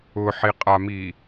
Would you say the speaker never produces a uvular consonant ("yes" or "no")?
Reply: no